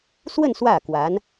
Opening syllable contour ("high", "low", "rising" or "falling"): falling